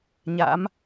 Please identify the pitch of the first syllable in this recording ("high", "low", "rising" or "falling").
rising